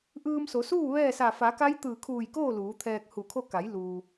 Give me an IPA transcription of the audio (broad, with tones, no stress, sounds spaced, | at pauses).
ʔ ɯː˧ m s o˩˧ s uː˥˨ ʋ ɛː˥˨ s a˧˩ f a˩˧ k a˧˥ j t̪ ɯː˧˩ kʰ uː˧˩ j k oː˥˨ l uː˩˧ t̪ʰ ɛː˧ k̚ h u˧˩ kʰ o˥˨ k a˩˧ j l uː˩